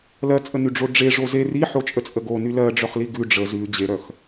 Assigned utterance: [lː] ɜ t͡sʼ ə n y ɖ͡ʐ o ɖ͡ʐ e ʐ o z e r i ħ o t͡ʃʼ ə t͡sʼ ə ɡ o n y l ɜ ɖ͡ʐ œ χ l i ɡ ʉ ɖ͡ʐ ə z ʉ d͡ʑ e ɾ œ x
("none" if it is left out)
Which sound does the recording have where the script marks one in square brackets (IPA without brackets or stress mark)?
l